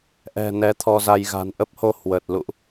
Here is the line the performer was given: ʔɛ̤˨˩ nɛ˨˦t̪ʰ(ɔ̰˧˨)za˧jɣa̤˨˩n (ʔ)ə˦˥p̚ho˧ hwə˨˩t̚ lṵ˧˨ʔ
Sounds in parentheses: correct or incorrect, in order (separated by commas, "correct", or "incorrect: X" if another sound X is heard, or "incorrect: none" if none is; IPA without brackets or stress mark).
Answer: incorrect: ɔ˧, correct